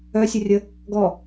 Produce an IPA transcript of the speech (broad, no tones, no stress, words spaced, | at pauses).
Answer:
œsʲərʲə | ɡɔ